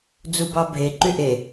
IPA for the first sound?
d͡z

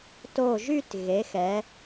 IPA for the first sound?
t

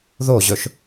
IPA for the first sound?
ð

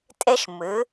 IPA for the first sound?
tʼ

